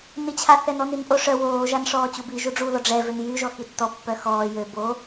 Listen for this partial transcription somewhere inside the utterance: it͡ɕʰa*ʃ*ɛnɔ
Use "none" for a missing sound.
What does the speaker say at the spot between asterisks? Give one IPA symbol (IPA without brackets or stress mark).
θ